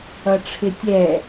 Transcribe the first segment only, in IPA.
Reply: ʌ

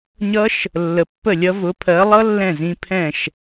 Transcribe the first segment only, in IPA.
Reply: ɲ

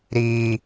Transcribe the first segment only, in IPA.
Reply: ɾ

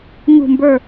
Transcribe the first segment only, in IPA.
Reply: ɲ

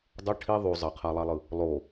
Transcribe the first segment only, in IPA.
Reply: dˤ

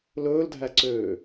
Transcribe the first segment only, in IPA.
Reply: l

